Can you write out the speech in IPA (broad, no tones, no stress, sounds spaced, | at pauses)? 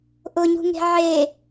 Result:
ʔ ʊ ɲ ṳ ŋ e̤ ʕ e